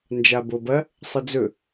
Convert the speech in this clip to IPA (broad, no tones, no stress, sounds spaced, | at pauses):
n d͡ʒ a b o b ɐ | sˤ ɨ d͡z ɵ